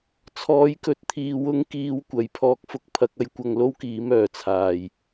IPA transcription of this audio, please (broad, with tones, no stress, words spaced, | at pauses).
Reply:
t͡sʰɔː˨˥jkɵ˨t̚t̪ʰiː˨ wʊ˧ŋkiː˨˧wkʷɐ˨˩j pʰɔː˧k̚fʊ˥k̚pʰɐ˨˥k̚ɐ˧j kʷɐ˧ŋlo˥wkiː˨˥m œː˨˩t͡sʰaː˨˩j